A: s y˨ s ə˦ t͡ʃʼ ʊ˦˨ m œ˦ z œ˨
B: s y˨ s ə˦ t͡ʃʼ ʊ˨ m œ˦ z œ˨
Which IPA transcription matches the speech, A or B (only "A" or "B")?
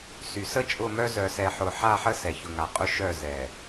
A